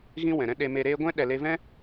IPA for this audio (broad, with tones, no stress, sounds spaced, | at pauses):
ɣ ĩ˦ w ɛ̃˨ ɾ ɛ̃˦ ɗ e˧ m e˧ ɾ eː˦ ɡʷ ɛ̃˦ ɗ ɛ˧ l e˦ v ɛ̃˦